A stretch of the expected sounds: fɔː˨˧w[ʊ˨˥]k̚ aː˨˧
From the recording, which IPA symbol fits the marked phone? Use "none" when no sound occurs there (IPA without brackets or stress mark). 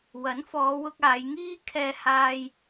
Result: ʊ˧